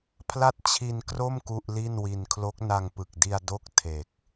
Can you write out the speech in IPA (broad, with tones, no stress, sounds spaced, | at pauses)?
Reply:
pʰ l a˥˩ t̚ t͡ɕʰ i˧ n k r o˥˩ m k u˥˩ ʔ l i˥˩ n w i˧ n kʰ l o˦˥ k̚ n a˧ ŋ p ɯ˨˩ k̚ d i˧ a̯ d o˥˩ k̚ tʰ e˨˩ k̚